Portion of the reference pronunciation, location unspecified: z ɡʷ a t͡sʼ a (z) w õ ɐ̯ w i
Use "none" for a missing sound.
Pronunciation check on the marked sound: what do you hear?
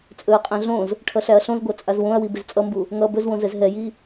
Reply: z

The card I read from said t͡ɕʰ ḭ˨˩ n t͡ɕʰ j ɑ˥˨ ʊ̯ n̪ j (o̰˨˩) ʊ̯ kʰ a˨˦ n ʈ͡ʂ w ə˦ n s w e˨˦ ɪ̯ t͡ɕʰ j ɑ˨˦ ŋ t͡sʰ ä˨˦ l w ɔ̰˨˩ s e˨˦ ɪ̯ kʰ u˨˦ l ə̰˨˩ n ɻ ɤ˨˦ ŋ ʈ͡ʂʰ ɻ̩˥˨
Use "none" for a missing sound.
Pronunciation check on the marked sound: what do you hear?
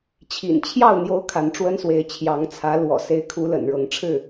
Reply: o˦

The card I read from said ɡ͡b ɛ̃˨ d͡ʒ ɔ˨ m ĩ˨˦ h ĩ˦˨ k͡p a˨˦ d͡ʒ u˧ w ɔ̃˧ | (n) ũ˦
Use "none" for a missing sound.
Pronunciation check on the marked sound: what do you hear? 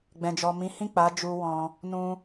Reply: n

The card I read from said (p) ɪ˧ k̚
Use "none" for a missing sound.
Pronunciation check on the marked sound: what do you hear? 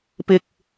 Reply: p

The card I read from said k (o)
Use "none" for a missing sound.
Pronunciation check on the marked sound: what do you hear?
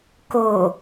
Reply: o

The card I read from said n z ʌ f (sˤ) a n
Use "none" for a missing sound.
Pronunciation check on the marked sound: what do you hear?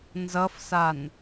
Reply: s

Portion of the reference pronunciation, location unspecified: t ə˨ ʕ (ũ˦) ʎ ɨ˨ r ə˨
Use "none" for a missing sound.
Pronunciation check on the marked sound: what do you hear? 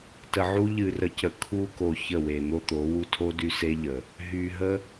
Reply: u˦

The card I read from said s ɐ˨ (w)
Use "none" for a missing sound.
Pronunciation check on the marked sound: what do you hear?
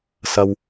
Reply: w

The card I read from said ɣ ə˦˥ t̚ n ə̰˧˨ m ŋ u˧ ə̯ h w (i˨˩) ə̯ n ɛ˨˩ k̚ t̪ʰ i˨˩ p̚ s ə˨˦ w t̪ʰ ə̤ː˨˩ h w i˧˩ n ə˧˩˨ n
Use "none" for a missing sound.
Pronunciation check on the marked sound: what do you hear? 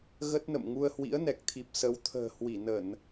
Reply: ḭ˧˥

